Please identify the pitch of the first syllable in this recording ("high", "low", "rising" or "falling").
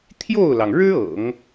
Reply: falling